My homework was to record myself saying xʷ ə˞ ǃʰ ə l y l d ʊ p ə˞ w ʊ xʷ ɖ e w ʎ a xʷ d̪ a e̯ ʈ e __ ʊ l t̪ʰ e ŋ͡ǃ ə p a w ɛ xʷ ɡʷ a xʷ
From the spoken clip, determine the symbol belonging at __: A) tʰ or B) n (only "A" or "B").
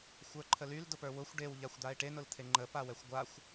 B